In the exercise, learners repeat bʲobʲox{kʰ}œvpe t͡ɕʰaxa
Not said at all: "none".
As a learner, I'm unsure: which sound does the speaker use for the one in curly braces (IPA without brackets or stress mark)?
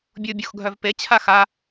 ɡʱ